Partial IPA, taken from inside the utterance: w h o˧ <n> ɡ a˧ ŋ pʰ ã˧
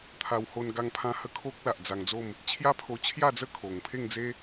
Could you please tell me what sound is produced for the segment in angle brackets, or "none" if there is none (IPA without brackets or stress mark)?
n